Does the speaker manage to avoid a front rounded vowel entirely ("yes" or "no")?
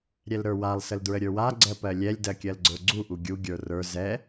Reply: yes